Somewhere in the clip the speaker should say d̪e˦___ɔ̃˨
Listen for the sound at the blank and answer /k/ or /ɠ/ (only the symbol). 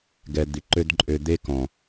k